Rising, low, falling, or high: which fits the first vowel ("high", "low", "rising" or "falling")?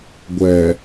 low